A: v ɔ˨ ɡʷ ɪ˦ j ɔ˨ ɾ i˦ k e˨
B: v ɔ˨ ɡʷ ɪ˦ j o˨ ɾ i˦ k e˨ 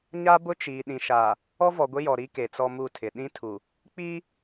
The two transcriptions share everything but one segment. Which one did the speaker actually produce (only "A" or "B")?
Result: A